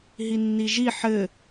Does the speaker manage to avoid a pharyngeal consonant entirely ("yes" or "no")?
no